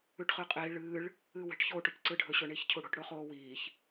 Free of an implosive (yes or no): yes